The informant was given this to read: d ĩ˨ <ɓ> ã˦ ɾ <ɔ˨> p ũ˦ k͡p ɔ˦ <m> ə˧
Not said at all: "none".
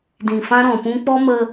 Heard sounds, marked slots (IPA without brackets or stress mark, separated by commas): f, ɔ̃˨, m